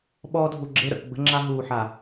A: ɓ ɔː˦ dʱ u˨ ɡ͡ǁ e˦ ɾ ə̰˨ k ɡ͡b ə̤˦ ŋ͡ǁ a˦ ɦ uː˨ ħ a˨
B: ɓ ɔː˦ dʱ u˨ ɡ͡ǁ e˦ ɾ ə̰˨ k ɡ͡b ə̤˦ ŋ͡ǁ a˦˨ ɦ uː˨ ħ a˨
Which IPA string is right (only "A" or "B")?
A